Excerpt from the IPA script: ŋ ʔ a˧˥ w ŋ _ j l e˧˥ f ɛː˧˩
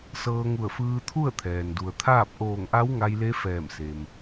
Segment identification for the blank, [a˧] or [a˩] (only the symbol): a˧